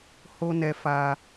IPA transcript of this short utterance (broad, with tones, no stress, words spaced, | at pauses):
ho˦nɛ˧fa˧